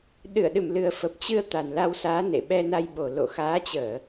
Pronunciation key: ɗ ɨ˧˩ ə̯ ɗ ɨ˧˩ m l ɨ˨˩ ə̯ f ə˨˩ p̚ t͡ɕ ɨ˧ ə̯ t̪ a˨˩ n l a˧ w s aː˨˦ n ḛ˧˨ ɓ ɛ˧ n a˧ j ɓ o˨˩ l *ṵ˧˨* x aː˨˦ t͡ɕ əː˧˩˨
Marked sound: incorrect: o̰˧˨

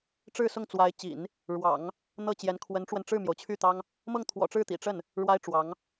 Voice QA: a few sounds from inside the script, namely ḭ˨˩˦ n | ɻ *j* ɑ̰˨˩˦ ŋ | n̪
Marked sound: incorrect: w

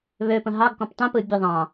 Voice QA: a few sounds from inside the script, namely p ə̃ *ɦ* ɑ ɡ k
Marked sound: correct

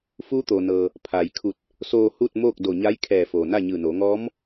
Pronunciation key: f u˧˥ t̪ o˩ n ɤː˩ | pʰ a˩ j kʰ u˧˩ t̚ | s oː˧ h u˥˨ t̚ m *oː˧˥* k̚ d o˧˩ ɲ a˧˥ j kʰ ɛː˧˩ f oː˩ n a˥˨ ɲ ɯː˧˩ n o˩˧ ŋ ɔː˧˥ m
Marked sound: incorrect: oː˥˨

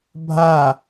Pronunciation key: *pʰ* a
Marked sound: incorrect: bʱ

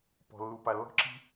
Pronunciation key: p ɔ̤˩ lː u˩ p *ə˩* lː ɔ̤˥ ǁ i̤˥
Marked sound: incorrect: a˩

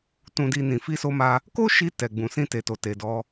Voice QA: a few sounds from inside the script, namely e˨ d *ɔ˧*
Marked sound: correct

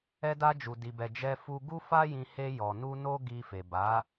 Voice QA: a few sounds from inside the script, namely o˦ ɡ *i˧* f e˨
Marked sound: correct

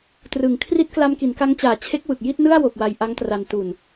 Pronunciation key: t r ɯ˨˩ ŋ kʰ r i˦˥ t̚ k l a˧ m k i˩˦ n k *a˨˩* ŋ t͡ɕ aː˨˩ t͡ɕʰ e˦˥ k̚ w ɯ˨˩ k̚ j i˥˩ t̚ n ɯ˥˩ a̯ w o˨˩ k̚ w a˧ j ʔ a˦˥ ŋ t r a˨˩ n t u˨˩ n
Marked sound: incorrect: a˦˥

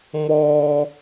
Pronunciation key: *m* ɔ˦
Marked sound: correct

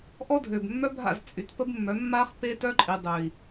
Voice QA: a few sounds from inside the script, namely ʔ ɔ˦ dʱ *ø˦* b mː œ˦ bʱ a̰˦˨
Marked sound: incorrect: ø˨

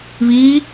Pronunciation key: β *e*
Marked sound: incorrect: i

